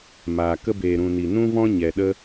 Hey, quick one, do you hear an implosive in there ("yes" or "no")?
yes